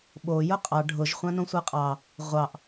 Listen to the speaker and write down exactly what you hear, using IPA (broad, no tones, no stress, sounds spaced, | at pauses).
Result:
ɓ o j ʊ qʼ ɑ ɖʱ ʊ ʒ χʷ ã n õ sʷ a qʼ ɑ | ʁʷ ɑ ʔ